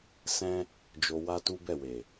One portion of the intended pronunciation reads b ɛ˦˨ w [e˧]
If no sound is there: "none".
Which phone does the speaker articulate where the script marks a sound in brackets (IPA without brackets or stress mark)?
e˨